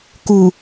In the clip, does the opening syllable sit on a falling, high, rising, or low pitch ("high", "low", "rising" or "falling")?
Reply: low